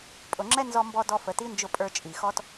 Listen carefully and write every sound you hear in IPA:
pʼ ʊ˨ ŋ͡ǁ ɛ˦ n z ɔ˧ m b ɔ˧ d ɔ˧ f ə˨ t i˦ n d͡ʒ ʊ˧ pʼ ə˞˧ t͡ʃʼ i˨ x ɔ˦ t

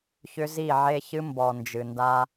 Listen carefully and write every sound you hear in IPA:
ç ʏ˦ z i˦˨ ʕ e˦ ç ɨ˦ m b ɔ˨ n d͡ʒ ɨ˨ n d a˦

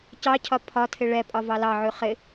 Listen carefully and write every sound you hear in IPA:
c ɑ cʰ ɒ pʰ ɒ tʰ ɪ ɭ ɛ pʼ ɒ v ɑ l ɑ ʕ ʉ χ ɪ

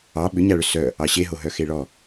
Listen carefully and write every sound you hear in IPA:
ɑ ɓ ʏ ɲ a ɭ ʏ s œ | ɑ ɕ e ɦ o ɦ œ x e ɭ ɔ

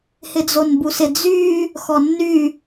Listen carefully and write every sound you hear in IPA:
h ɪ d͡z o n b u s ɪ d͡z y | x ɔ nː y

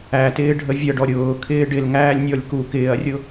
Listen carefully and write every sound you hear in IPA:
æ t ɪː ɖʱ ə vʲ ʌ ɖ ɔ ɾʲ ʊː kʰ ɪː ɖ ɪ l ŋ æː lʲ nʲ ɔ lʲ k u k ɪː ɐ̯ rʲ ʊ

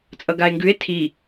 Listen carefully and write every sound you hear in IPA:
t͡sʼ ʌ ɡ a e̯ ŋ ɡ ʉ e̯ tʰ i

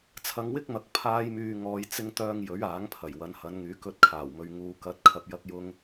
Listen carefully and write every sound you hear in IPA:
t͡sʰ ɐ˧ ŋ w ɪ˥ k̚ m ɐ˨ k̚ pʰ aː˧ j m yː˨ ŋ ɔː˨˧ j t͡s ɪ˨ ŋ t̪ œː˨ ŋ j ɵ˨˥ ɥ aː˨˥ ŋ pʰ ɐ˨˩ j w ɐ˨˧ n h ɐ˨˧ n ŋ yː˨˥ k ɵ˧ t̚ kʰ aː˨˩ w m ɵ˨ ɥ ŋ uː˨ k ɐ˨˥ t̚ kʰ ɐ˨ p̚ j ɐ˧ k̚ j ʊ˧ ŋ

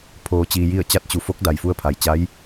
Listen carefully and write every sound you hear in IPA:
pʰ oː˩ t͡ɕ iː˩ j i˧˩ ə̯ t͡ɕ a˧ t̚ t͡ɕ u˩ f o˧˥ k̚ d a˩ j f u˧ ə̯ pʰ a˩ j t͡ɕ a˧˥ j

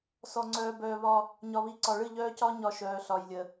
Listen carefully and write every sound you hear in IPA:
s ɔ˨ ŋ͡ǀ œː˨ b œː˨ β ɒ˦ | ɲ ɒ˨ β i˨ ǀ ɒ˨ ɭ ɨ˦˨ ʎ œː˦ c ɒ˦ ɲ ɒ˦ ʃ œː˨ ɬ ɒ˨ j lʲ ə˨

